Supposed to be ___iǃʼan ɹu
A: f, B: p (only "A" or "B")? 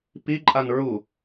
B